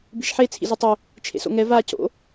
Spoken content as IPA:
bi̤ʃħe t͡sʰḭzotˤɵ | t͡ʃʰḛso̰ŋɛ va co̰

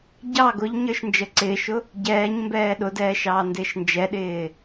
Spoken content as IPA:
ɟɑ ɡʊʎɲə˞ʃ nd͡ʒə ǀɪːʃʊ | ɟɛːɲmbɛː ɗʊdɛː ʃɑːndɪːʃnd͡ʒɛɗɪː

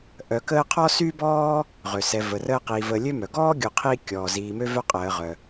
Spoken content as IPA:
ʔœ˨kəː˦ qʰɔ˥sy˥bɔː˥ | ʁø˩ sɛ˨və˩rəː˦qiː˨ vəː˨lʲø˦mœ˩ɡɔː˥ ɡʲu˨qʰiː˦ kʲɔː˩ziː˨mø˦vœ˦ qʼəː˨ʁœ˩

